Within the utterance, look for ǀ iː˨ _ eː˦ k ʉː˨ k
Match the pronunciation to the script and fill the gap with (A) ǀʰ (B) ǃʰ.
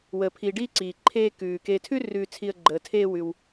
B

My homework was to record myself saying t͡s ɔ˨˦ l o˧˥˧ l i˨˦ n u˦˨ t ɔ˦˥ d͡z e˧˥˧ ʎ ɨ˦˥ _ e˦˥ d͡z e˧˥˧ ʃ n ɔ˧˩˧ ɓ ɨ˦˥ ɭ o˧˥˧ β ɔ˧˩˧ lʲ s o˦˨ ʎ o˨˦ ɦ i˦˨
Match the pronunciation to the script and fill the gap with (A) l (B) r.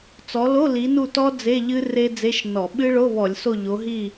B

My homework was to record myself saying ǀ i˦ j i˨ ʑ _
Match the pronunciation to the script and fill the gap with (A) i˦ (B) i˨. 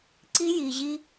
A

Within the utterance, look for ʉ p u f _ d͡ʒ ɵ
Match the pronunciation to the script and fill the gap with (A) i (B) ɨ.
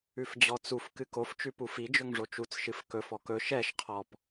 A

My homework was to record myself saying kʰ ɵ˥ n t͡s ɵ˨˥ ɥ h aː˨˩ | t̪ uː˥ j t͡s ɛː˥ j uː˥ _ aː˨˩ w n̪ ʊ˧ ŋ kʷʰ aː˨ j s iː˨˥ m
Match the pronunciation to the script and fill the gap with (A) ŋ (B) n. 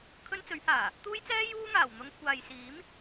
A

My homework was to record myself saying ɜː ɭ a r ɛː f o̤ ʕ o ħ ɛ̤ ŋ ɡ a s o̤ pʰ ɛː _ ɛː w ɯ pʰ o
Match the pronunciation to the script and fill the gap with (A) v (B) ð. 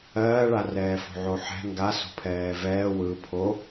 A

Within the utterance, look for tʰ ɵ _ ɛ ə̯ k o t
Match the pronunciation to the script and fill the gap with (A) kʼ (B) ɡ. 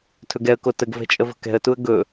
B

